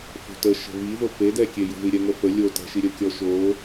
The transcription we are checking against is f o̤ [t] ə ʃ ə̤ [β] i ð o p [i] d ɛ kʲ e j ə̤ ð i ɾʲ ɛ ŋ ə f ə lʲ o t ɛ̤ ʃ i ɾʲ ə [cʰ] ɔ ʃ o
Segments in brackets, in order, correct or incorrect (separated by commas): correct, correct, incorrect, incorrect